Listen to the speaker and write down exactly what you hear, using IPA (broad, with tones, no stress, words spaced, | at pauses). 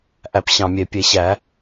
ʔæ˧˩˧pɕɑ̃˨˩mʲe˨˩ pʲe˧˩˧ɕæ˧˩˧